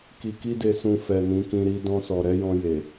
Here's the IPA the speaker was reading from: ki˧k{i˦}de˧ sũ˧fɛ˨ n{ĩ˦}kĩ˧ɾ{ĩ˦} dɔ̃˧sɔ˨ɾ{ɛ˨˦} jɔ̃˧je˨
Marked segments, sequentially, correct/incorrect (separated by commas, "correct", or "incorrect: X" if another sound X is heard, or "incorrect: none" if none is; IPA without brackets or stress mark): correct, incorrect: ĩ˨˦, incorrect: i˦, correct